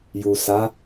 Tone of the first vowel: low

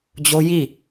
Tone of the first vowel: high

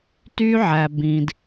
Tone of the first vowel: high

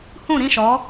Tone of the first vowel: falling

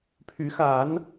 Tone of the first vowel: rising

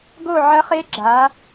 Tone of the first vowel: falling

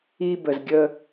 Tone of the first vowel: high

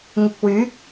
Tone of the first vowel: low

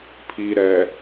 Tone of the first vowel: low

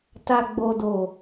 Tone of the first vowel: low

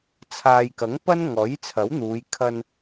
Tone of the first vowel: low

